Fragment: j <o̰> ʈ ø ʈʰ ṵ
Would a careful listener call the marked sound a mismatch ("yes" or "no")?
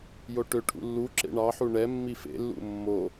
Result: yes